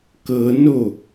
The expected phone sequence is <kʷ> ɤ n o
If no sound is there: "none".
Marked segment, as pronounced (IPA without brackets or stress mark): k